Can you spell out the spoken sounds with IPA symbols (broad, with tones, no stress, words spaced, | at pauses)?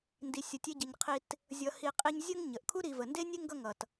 ndi˨sʲʌ˨tʲe˦ɟʌ˨ɲ qʰi˦t | zʲʌ˨hi˨ qʼi˦ɲ zʲə˥ŋɲə˩ʔkʰu˥ ɾi˨və˩ nde˥nʲe˥ŋɡʌ˦ ŋʌ˩t